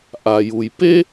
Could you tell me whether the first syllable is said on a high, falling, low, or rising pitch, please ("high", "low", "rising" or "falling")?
low